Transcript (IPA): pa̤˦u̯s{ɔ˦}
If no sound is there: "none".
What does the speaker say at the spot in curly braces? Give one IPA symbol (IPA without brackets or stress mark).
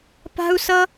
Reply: ʌ˦